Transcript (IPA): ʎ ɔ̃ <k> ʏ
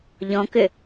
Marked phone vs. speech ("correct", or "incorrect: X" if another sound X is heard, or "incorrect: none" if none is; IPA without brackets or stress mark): correct